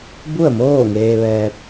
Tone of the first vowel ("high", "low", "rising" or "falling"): falling